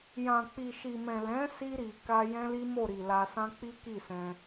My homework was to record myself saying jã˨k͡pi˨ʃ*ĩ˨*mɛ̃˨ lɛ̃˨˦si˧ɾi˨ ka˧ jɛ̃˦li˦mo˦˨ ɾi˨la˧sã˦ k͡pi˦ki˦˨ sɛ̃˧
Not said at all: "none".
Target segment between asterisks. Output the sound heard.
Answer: i˨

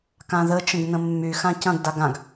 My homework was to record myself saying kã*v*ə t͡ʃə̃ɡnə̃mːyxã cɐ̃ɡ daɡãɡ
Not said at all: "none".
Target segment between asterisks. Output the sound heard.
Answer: ð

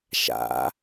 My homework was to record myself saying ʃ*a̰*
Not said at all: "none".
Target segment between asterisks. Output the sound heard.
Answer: a̰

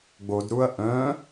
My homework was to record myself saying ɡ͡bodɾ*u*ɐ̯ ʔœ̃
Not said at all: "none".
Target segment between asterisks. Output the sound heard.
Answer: u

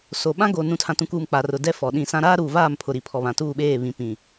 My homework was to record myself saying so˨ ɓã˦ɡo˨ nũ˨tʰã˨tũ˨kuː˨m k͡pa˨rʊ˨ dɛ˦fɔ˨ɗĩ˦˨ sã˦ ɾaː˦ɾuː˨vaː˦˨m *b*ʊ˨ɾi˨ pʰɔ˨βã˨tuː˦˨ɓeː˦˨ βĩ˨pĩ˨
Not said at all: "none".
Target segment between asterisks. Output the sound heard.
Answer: pʰ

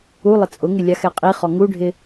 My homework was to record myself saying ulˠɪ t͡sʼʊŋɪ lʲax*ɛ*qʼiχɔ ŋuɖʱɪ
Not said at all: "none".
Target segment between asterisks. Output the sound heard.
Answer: ɛ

